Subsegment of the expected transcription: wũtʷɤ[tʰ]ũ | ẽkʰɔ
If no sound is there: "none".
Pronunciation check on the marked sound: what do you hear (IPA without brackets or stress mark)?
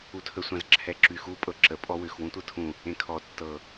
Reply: tʰ